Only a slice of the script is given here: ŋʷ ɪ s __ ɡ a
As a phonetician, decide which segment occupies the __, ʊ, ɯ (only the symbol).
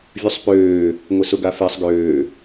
ʊ